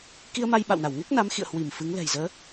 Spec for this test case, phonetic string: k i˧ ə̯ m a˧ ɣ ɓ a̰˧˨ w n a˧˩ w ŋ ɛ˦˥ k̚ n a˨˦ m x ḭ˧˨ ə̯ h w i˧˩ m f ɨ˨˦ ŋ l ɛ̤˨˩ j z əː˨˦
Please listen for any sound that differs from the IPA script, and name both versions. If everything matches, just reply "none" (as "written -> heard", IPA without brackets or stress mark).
ɣ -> j